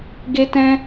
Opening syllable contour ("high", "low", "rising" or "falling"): high